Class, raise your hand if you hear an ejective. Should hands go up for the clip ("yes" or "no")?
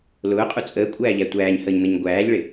yes